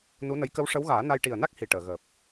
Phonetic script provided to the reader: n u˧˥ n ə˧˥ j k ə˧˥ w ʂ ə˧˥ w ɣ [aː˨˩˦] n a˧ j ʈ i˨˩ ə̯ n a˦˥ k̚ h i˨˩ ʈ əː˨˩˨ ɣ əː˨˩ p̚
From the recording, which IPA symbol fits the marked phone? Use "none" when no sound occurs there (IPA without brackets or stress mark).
aː˨˩˦